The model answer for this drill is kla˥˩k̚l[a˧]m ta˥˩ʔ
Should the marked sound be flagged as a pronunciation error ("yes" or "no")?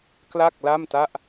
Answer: yes